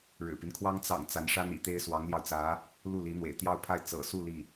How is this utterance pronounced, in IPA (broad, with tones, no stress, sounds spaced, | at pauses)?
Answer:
ɻ ɻ̩˨˩ p i˦ n kʰ w ɑ˥ ŋ t͡s ɑ̰˨˩ ŋ t͡s a˧˥ n ʂ a˥ n ḭ˨˩ t̪ e˥ ɪ̯ s w ɑ˧˥ ŋ l j ɑ˧ ʊ̯ t͡s ä˧˥ | l u˥˩ l i˧˥ n̪ w ḛ˨˩ ɪ̯ t̪ j ɑ˥˧ ʊ̯ pʰ a˥˩ ɪ̯ t͡s ɤ̰˨˩ s u˥˧ l i˥˩